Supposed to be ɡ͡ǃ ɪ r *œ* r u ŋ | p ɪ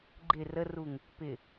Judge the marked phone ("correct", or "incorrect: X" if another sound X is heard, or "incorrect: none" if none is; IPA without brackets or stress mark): incorrect: ə